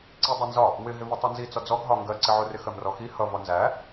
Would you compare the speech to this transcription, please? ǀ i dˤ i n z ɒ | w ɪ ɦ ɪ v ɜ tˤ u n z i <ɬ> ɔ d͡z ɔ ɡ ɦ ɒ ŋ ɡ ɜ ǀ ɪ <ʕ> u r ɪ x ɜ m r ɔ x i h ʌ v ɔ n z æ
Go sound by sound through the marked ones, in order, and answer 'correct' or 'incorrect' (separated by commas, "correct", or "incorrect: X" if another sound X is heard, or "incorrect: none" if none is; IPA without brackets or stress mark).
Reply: incorrect: t͡s, correct